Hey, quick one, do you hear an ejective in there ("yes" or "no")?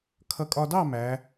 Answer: yes